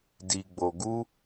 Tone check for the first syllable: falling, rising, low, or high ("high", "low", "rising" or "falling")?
low